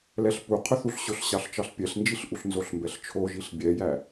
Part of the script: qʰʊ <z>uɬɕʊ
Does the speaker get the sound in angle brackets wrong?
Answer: yes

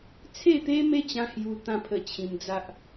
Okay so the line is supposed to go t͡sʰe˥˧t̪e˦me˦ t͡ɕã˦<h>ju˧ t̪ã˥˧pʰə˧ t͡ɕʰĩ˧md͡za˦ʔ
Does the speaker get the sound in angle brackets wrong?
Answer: no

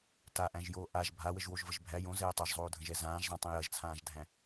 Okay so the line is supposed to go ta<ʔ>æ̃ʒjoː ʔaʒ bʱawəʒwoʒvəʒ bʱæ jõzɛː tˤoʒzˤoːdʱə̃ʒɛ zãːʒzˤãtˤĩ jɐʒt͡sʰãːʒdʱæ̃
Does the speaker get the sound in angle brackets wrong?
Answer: no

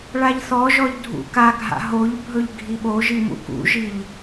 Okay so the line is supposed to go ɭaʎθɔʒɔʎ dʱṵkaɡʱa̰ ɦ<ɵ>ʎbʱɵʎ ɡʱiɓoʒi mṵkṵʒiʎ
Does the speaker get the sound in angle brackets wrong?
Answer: yes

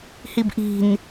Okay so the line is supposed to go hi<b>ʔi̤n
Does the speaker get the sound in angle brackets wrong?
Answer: no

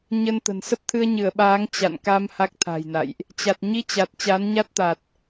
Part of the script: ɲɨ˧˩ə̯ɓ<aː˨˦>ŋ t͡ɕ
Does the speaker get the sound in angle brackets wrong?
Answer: no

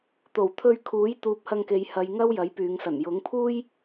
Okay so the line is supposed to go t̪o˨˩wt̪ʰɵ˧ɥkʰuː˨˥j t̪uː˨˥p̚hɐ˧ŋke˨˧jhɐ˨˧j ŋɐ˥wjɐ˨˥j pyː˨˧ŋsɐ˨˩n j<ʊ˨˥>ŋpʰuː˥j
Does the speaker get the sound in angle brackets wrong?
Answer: no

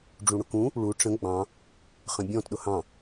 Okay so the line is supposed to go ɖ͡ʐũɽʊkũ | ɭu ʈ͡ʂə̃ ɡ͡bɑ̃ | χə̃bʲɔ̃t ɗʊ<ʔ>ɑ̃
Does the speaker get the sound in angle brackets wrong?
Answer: yes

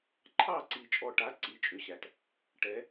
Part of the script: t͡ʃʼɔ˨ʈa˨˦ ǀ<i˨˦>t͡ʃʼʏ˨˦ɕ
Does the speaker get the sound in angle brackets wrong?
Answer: no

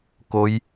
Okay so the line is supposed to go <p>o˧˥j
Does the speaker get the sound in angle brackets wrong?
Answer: yes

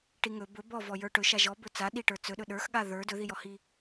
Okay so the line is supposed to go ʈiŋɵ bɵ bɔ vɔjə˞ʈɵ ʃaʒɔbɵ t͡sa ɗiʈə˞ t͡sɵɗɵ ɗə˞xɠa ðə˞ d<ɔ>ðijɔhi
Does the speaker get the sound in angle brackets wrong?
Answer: yes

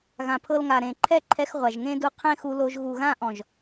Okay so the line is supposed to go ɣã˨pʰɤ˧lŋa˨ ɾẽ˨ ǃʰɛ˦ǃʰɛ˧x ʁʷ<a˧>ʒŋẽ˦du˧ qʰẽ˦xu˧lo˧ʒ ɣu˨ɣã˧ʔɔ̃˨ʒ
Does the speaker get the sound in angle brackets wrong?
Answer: yes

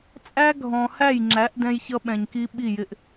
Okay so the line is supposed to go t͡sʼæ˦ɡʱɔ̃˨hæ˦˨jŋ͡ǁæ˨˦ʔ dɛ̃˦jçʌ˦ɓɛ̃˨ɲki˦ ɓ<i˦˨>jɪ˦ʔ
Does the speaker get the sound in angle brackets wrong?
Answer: no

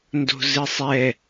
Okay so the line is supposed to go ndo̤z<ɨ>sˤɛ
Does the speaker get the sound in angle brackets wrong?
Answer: no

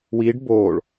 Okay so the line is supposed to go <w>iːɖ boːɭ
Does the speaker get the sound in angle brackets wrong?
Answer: no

